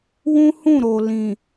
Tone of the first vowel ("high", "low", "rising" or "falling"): high